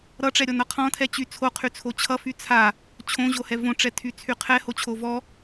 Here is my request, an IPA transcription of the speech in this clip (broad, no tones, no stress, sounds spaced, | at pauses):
ɾ ʌ ʈ͡ʂ ɛ ɾʲ ɔ n ʌ qʰ ɔ̃ tʰ ɛ t͡ɕ y t͡sʰ o qʰ y t͡sʰ o t͡ɕʰ ʌ f y t͡sʰ a | t͡ɕʰ õ ʑ o h ɛ v õ ʈ͡ʂ ɛ tʰ y t͡sʰ y qʰ ɛ h o t͡ɕʰ o v ɔ